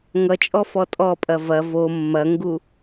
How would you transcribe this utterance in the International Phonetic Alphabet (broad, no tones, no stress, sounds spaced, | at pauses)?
ŋ ʌ t͡ʃʼ ɔ f ɔ tʼ ɔ pʼ ɐ v ɐ v o mː ɐ ŋ ɡ u